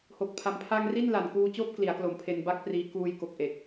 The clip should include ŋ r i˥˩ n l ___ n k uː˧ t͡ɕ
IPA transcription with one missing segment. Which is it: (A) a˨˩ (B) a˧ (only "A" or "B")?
A